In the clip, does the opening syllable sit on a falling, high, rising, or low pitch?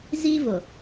high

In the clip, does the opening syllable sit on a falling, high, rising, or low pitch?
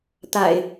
low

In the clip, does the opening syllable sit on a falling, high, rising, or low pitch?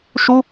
high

